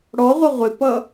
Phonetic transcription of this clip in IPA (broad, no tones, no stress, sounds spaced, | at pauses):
ɽ ɔ ʁʷ ʌ ʁʷ ɪ p ʌ